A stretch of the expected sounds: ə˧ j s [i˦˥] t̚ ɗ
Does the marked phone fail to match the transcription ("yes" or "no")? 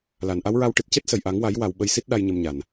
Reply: no